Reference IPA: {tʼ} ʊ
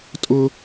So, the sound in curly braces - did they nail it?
yes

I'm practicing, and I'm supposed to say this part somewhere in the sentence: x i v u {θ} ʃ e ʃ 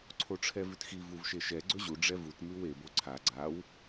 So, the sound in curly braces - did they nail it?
no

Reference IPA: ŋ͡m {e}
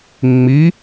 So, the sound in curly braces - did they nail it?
no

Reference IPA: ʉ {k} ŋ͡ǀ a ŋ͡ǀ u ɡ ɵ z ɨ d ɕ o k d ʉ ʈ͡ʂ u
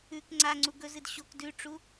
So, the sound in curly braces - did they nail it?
yes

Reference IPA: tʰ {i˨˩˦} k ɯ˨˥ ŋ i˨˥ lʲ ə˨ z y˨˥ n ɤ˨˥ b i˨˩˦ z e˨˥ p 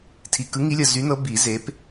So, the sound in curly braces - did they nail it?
no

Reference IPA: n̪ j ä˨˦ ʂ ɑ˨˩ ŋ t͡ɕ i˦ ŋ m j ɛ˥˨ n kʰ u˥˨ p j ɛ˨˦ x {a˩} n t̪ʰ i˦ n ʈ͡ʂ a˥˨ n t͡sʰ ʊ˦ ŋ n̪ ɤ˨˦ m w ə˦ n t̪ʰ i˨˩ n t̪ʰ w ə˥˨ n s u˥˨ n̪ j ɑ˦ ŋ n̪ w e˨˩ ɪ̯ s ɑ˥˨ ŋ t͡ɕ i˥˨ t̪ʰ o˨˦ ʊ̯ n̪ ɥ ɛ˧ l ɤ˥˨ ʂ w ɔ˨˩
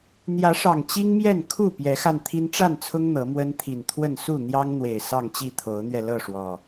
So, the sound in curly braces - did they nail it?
no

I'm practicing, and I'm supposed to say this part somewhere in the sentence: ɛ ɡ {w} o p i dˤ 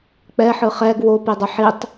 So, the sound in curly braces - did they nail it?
yes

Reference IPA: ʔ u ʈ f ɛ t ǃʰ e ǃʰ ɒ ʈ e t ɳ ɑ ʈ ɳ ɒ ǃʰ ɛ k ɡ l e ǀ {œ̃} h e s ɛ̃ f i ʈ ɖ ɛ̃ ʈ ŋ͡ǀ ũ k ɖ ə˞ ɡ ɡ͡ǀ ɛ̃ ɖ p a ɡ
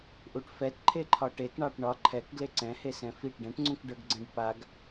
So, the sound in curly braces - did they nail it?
no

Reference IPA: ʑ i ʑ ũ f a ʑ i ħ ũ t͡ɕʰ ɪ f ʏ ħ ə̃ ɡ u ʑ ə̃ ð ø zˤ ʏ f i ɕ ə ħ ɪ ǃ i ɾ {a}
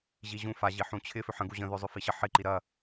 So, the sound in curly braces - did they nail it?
no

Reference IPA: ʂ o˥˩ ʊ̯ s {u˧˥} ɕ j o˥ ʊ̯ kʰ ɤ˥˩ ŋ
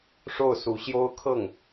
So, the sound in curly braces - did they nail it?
yes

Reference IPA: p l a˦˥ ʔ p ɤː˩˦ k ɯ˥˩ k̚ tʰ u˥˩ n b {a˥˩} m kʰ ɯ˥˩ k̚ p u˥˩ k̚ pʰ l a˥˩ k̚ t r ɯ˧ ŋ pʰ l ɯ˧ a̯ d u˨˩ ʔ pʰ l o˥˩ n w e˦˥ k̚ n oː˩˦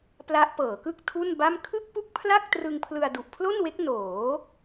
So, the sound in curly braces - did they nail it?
yes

